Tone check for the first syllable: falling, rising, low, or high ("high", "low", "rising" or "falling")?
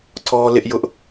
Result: high